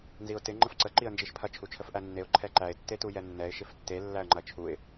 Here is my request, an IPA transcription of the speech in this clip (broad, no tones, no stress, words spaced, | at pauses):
nziʊ̯tɪ ŋ͡ǃəfǀə ǃiə̯nd͡ʒiʃpʰɐ t͡ʃʰut͡ʃʰəfʔænːeʊ̯ ǃʰɛǃæɪ̯ tːetujɛnːɛɪ̯ ʃɪftːe lːæə̯ŋ͡ǃɐt͡ʃʰuɪ̯